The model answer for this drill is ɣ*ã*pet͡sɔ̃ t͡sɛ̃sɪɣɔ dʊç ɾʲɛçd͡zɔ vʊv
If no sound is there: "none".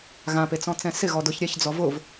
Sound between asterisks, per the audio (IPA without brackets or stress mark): ã